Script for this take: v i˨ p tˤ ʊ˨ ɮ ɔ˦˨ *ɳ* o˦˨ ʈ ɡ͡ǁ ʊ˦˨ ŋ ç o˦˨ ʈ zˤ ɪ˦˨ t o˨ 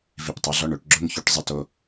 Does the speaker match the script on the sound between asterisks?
yes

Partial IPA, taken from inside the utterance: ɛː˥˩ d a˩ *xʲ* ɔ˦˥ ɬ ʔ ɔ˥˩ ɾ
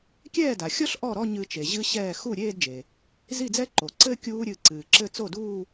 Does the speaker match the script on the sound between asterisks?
yes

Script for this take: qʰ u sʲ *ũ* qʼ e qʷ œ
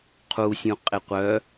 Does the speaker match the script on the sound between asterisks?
yes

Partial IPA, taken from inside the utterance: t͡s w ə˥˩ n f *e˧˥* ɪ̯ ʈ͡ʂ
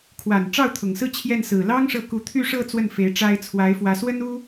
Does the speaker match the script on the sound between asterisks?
yes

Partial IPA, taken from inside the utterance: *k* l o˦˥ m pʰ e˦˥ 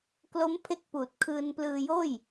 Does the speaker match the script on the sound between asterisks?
yes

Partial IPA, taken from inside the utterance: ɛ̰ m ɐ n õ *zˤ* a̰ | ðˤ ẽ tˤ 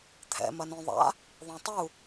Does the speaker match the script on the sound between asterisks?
no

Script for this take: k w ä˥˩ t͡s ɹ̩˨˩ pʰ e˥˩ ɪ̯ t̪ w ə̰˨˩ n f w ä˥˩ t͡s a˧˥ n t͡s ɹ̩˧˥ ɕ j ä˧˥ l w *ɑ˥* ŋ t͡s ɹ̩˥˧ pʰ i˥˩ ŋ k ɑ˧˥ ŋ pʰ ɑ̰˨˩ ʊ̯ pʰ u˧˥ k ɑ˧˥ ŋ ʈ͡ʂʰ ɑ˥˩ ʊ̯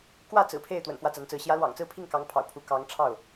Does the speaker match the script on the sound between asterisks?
no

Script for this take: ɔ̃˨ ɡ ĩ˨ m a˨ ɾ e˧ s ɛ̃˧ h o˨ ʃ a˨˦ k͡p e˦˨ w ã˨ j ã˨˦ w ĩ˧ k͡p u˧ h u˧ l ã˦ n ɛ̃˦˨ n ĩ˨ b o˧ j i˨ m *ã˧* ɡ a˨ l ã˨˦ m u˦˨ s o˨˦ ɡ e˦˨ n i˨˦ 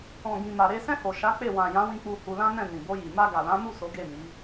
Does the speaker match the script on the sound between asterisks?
no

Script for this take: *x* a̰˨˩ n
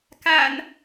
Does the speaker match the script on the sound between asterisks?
no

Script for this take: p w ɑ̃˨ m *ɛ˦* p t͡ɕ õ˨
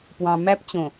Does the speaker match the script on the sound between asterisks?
no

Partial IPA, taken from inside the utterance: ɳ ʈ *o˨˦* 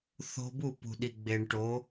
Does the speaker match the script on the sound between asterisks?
yes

